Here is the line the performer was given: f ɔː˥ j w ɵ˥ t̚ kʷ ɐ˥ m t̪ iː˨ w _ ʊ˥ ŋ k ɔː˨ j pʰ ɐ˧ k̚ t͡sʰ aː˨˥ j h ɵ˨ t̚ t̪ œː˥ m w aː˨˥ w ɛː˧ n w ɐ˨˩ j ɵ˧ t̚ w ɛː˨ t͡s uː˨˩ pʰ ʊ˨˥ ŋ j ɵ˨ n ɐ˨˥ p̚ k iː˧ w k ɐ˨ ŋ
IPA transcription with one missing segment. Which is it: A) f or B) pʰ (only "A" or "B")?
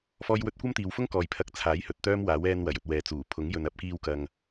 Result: A